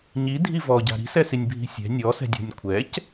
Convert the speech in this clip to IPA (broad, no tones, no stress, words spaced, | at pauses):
ɲidʱi vɔɟa̤ ɾi̤sɛsinʲ bʱi̤sʲɛ̤ nʲɔsɛ̤dʲɔ̤nʲ kʷʰɛc